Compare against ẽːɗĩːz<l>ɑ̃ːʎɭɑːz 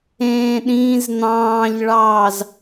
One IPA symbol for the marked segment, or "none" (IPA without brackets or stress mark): n̪